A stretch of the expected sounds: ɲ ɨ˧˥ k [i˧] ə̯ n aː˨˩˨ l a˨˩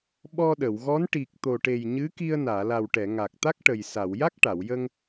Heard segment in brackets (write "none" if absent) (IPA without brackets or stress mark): i˧